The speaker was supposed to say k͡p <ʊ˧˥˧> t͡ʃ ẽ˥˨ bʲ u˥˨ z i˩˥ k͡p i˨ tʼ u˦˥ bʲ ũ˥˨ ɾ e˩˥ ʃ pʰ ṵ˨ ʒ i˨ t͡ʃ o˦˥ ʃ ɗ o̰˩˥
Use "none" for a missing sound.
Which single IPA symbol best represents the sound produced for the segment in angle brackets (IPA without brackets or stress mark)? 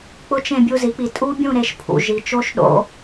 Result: ʊ˧˥˧